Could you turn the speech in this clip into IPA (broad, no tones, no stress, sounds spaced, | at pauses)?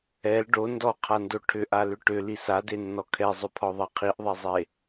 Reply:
ɛ l ɖ o n d ɔ qʰ a n d o ʈʰ ʏ ʔ a l ʏ ʈ ʏ l i s a d e nː ɔ kʰ ɛ zˤ ʏ pʰ ɔ ðˤ e qʰ i ʔ ðˤ e zˤ e